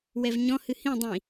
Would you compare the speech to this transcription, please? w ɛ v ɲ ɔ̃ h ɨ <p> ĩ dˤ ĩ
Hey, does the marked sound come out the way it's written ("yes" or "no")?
no